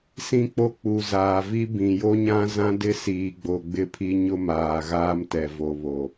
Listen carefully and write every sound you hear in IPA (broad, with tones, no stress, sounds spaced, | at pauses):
s ĩ˦ k͡p o˦ k͡p u˨ z aː˨ v i˦ b ĩ˨ j o˦ ɲ ã˦ z ã˦ d ɪ˦ s iː˨ ɡ͡b o˨ ɡ͡b ɪ˦ pʰ i˦ ɲ ʊ˦ m aː˨ ɣ aː˦ m t ɛ˨ v o˨ β o˨